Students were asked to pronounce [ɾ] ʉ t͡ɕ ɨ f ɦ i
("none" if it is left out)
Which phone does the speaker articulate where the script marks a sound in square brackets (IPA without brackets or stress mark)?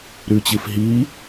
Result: ɾ